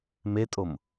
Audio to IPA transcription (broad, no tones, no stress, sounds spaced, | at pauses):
m e tʼ o m